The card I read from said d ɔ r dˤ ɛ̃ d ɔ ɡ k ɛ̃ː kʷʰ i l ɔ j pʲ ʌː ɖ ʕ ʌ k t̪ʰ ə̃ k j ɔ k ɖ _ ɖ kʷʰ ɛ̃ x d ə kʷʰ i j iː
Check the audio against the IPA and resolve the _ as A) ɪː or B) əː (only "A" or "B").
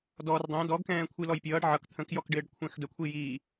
A